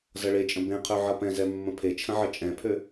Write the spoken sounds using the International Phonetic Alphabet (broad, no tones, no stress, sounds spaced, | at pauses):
z ʌ ɭ e t͡ʃʼ ə̃ b ẽ qʰ ø ʕ ʌ p ɛ̃ z ɛ mː ə̃ pʰ e t͡ʃʰ ə̃ ʕ ə t͡ʃʼ ɛ̃ pʰ ø